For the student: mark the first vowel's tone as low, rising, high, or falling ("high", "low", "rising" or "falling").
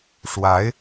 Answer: rising